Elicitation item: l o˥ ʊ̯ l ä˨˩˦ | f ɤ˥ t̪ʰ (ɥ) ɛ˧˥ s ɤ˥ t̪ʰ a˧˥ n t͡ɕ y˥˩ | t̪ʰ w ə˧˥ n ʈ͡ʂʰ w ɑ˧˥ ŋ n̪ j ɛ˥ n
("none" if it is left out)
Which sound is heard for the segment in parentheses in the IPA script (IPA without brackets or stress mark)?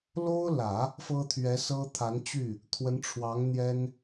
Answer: ɥ